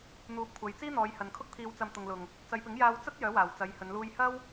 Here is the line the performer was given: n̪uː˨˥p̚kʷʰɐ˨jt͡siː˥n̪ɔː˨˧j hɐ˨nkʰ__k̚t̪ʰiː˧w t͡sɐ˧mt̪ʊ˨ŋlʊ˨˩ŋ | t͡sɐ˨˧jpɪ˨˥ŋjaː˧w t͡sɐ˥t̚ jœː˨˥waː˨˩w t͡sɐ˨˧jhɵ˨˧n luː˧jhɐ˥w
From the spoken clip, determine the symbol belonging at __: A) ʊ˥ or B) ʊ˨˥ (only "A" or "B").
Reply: A